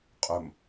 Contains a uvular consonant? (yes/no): yes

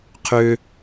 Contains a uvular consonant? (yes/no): yes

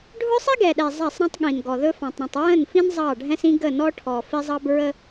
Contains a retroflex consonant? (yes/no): yes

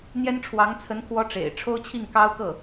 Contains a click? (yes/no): no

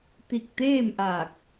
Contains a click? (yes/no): no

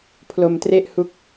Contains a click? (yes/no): no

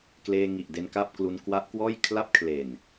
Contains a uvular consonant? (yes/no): no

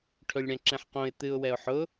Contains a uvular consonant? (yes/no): yes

